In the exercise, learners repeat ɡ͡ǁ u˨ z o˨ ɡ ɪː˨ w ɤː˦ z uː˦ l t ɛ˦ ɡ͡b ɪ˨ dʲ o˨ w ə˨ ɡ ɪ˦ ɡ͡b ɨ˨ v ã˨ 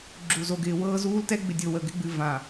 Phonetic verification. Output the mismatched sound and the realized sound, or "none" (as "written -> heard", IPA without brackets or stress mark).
none